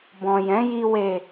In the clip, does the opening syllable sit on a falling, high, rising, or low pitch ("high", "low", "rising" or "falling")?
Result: low